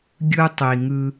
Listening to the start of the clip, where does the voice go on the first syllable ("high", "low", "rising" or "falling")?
high